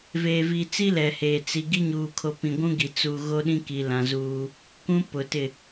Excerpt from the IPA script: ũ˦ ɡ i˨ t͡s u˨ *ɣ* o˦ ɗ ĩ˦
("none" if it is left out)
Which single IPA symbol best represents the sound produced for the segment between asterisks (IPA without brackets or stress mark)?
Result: ɣ